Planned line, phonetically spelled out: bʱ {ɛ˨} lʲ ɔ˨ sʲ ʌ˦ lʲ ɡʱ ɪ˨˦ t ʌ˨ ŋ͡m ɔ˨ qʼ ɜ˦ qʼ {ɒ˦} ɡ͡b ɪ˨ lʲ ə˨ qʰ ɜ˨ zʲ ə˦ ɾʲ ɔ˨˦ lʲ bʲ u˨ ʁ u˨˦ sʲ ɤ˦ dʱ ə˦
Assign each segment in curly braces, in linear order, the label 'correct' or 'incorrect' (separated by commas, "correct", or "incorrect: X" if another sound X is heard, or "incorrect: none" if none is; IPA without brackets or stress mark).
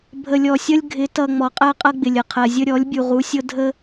incorrect: ə˨, incorrect: ʌ˦